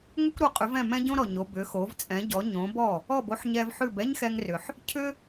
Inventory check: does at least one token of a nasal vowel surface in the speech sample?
yes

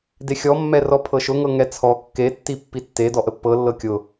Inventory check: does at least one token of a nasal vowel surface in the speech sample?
no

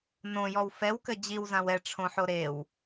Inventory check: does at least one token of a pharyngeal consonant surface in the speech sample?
yes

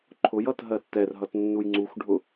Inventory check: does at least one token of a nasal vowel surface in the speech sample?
no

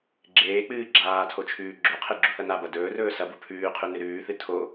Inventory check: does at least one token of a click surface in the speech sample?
yes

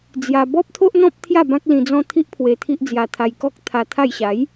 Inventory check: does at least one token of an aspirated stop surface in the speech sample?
yes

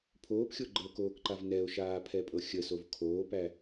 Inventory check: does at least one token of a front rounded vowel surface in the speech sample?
no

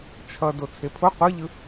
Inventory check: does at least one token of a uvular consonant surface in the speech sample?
yes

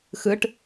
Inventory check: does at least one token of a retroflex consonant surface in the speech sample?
yes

